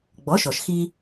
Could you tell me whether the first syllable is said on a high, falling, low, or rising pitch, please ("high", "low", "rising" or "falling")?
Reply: rising